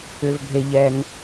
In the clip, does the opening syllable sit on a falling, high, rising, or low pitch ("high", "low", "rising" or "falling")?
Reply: low